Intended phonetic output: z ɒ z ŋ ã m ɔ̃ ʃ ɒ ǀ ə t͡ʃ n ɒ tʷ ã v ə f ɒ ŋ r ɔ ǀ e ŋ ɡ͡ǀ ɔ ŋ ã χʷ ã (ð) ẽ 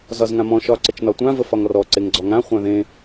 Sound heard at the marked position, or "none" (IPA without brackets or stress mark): ð